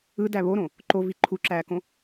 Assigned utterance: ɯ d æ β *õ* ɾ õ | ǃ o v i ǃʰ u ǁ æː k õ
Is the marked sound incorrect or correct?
incorrect